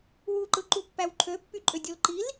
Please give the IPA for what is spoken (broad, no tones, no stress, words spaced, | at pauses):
wu ǃɯǃupːæwǃʰø pːyǃʼødʲolǃil